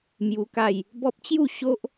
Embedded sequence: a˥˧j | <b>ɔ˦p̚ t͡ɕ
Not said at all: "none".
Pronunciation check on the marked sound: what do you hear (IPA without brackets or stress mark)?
b